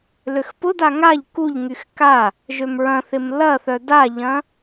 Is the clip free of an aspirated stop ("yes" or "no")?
yes